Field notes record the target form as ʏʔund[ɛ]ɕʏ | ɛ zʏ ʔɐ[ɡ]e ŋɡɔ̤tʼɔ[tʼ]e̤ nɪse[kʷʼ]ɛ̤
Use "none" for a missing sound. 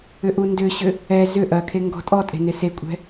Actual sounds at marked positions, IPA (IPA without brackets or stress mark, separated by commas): ʏ, kʰ, tʼ, kʷʼ